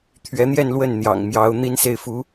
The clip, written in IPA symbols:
t̪ʰ ɥ ɛ˧˥ n̪ j ɛ˥˧ n l w ə˥˩ n n̪ j ɑ̰˨˩ ŋ m j ɑ˧˥ ʊ̯ n̪ i˥ n s e˥˩ ɪ̯ f u˧˥

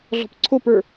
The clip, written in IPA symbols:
ɮ ɔ̤ p ǀʰ o p ə˞

